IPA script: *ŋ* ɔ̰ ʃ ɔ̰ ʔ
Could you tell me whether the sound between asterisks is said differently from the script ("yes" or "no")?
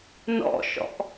yes